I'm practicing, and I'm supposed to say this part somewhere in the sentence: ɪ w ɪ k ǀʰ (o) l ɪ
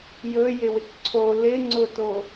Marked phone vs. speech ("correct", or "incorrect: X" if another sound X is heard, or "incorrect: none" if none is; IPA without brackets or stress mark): correct